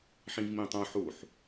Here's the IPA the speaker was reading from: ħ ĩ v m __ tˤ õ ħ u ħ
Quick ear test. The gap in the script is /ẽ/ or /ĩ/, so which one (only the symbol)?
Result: ĩ